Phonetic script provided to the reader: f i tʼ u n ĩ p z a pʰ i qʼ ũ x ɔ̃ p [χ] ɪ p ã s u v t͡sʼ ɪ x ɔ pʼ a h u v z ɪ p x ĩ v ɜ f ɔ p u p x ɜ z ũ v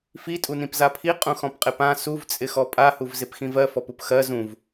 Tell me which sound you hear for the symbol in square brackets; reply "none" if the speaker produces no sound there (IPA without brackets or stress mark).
qʼ